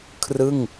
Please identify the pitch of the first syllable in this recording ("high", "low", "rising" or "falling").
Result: falling